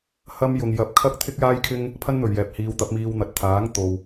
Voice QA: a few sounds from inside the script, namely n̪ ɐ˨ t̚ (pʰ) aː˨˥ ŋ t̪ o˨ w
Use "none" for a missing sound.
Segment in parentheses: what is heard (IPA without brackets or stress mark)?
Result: t̪ʰ